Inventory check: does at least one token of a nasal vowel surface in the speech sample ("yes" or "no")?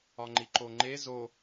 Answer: no